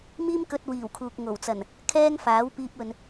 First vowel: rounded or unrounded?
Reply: unrounded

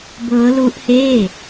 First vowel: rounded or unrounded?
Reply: unrounded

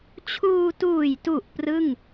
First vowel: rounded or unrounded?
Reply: rounded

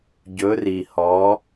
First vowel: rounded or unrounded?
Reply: rounded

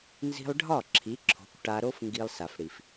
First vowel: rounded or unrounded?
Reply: unrounded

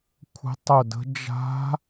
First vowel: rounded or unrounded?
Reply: unrounded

